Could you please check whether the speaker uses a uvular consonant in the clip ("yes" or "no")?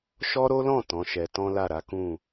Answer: no